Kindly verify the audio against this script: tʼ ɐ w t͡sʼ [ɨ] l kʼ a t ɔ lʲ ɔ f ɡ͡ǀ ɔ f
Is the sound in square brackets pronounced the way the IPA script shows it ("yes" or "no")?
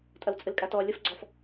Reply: yes